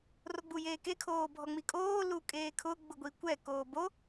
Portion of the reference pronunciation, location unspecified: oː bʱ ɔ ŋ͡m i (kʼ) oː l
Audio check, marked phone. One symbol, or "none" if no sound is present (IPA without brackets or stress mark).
kʼ